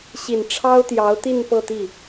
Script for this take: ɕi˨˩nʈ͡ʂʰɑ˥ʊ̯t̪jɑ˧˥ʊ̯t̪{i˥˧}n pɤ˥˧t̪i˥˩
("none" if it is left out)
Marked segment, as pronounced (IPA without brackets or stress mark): i˥˧